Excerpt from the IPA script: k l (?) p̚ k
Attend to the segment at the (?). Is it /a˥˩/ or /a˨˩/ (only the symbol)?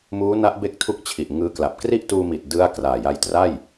a˨˩